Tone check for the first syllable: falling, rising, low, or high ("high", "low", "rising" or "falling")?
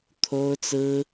high